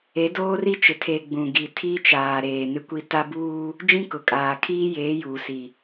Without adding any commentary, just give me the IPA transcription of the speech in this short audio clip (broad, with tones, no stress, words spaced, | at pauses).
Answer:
e˨˦doː˦ri˦t͡ʃɪ˨ tʰe˨ ɡ͡bũ˨ ɡi˨tʰi˦ t͡ʃaː˨ɾeː˨ nɪ˦kʷi˦ ta˦buː˦ | d͡ʒĩ˦kʊ˨kʼaː˨ kʰiː˦jeː˨˦ juː˨si˨